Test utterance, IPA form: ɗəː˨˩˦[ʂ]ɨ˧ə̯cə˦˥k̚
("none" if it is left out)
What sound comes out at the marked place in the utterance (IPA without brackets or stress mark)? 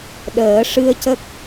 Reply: ʂ